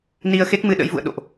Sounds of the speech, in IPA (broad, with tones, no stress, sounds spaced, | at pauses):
n i˧ ə̯ x e˦˥ k̚ m ɨ˧ ɗ ə̰˧˥ j v ṵ˧˨ ə̯ ɗ o̰˧˨ ʔ